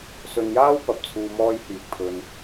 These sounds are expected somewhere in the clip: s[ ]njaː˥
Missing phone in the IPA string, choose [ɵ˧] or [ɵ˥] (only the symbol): ɵ˧